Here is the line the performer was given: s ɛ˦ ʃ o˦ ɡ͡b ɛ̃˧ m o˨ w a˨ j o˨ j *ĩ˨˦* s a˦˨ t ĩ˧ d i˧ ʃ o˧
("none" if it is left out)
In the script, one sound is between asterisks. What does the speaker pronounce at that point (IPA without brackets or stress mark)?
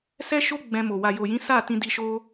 ĩ˨˦